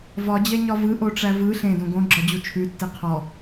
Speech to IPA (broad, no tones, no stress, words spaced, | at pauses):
vɒd͡ʑɛɲɒ vɯʔoʈ͡ʂæ vɯ ɬẽdõ ɡõɡ͡ǁɒd͡ʑu t͡ʃʰʉtːe qʰɔ